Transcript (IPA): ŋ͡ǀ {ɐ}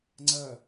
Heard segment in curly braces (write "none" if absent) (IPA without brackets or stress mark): ɐ